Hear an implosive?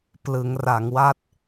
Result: no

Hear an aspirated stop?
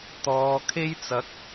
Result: yes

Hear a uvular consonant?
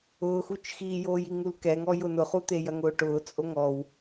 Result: yes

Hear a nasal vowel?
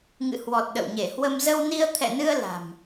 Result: no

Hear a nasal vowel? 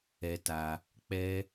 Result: no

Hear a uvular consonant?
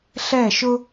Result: no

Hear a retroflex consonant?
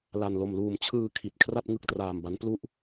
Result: no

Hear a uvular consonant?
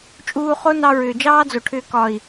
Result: yes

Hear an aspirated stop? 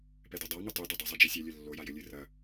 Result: no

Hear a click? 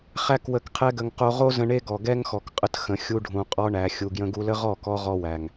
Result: no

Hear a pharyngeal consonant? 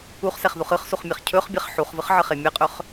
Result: yes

